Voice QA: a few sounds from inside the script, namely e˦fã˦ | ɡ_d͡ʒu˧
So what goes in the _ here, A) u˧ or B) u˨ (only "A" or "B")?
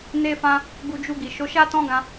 A